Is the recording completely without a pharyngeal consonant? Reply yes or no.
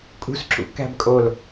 yes